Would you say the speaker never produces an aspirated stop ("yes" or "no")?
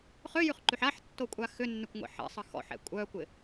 yes